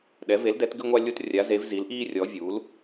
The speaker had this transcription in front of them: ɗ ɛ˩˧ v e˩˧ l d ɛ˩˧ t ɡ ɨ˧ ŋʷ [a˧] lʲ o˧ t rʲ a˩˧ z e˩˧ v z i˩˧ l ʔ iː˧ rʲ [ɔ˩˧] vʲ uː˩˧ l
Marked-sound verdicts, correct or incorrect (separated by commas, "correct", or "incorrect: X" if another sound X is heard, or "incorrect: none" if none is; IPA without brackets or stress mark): correct, correct